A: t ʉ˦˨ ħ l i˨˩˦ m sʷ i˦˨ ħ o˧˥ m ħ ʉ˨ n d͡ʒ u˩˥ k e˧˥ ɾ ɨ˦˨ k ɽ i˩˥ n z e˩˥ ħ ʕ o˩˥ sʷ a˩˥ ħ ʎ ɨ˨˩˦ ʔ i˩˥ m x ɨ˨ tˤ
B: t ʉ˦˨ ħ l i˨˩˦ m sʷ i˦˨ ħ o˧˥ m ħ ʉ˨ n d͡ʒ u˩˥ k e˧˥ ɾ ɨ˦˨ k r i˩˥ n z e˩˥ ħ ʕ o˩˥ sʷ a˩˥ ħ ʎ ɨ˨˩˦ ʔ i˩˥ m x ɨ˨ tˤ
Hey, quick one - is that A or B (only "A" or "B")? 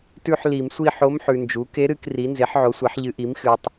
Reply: B